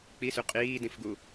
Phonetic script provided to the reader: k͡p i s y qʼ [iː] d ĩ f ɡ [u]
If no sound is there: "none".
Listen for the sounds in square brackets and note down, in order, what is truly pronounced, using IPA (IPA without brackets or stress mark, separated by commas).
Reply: iː, u